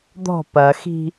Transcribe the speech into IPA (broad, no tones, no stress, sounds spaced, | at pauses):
d̪ ɔ̤ p ɐ x i̤